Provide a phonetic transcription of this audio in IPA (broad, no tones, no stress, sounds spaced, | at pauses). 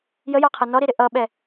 j ə j ɑ qʰ ʌ n ɔ ɾ i ɾ ɪ ʔ ʌ ɓ ɛ